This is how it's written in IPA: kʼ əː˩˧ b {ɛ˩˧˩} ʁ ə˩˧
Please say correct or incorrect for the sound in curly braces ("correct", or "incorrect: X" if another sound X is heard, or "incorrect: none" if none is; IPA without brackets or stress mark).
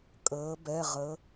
correct